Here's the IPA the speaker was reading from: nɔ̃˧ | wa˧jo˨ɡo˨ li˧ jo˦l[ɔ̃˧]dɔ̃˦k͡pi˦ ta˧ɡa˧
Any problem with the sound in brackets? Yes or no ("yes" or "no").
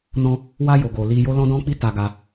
yes